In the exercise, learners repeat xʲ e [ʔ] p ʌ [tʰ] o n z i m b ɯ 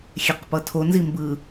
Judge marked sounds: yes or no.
no, yes

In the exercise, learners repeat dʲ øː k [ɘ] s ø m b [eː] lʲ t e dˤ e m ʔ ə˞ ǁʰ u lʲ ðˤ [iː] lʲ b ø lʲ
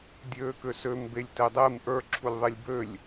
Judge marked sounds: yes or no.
no, no, no

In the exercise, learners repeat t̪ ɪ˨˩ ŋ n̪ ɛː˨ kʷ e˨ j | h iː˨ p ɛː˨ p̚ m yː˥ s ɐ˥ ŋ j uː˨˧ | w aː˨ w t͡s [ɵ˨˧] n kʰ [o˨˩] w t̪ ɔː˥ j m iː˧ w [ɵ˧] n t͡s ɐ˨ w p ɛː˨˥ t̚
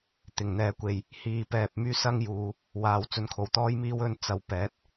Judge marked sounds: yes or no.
no, yes, yes

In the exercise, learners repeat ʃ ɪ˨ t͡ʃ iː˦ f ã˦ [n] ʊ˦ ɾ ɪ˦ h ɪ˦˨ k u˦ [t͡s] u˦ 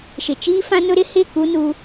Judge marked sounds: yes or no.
yes, no

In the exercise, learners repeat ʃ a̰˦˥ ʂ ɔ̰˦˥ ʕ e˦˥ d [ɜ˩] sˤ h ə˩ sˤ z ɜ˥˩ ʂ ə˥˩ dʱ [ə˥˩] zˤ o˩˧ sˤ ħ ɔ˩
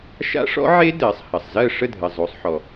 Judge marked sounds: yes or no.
no, no

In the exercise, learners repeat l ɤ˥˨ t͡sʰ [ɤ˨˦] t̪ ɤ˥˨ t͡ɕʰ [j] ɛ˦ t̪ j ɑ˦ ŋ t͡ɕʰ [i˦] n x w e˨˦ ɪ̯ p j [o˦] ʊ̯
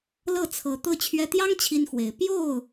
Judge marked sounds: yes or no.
yes, no, yes, no

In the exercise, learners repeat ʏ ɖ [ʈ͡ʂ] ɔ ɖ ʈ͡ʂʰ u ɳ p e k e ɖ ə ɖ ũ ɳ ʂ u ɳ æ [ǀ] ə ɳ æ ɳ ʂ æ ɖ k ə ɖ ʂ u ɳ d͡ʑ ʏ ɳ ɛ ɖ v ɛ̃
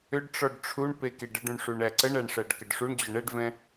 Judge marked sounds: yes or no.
yes, yes

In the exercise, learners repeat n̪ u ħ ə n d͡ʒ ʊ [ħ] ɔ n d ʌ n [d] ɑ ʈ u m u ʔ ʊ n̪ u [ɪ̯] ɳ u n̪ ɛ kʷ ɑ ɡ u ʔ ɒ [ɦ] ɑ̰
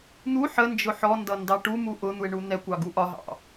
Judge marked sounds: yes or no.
yes, yes, yes, yes

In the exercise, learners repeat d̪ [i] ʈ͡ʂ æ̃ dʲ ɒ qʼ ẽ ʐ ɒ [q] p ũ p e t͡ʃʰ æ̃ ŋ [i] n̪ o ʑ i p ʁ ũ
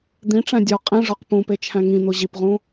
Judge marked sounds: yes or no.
no, yes, no

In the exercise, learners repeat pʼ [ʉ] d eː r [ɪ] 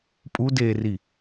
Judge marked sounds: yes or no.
no, no

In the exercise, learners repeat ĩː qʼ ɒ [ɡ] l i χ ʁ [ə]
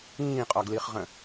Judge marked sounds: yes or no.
yes, no

